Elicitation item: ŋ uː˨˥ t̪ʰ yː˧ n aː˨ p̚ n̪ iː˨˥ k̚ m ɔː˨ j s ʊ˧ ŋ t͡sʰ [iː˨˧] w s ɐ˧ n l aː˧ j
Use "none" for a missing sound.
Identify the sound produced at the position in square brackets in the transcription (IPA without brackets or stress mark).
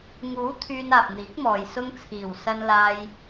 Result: iː˨˩